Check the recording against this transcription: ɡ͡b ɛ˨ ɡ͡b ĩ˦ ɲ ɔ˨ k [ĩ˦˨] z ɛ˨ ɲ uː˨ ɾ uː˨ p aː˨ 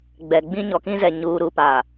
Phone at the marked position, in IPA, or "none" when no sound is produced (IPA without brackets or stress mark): ĩ˦